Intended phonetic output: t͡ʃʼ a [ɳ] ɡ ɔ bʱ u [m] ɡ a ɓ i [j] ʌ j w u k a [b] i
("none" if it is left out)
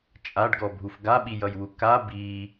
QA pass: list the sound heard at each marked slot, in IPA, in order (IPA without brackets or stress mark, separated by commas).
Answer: ɖ, f, j, b